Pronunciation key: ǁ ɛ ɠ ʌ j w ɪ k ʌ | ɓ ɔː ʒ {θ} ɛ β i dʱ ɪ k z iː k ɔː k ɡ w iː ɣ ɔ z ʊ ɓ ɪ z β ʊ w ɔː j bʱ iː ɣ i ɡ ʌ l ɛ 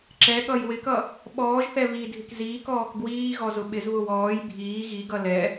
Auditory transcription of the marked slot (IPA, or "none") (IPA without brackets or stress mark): θ